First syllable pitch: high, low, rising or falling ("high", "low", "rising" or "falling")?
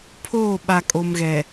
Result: falling